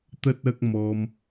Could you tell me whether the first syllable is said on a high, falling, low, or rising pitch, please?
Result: high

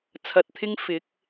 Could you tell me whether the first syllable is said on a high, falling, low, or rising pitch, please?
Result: low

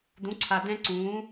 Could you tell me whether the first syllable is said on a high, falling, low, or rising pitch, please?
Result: rising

